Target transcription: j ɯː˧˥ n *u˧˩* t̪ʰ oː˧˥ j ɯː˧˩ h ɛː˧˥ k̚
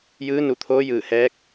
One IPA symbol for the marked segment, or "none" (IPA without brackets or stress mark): u˧˩